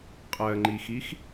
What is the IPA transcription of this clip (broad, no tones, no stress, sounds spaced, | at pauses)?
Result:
qʼ ɜ ŋ͡ǃ i x i x